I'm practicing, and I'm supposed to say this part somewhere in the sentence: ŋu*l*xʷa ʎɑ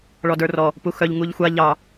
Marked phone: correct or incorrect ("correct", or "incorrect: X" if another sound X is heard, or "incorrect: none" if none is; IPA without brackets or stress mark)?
incorrect: ʎ